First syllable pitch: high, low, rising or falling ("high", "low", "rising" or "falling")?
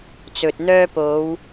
low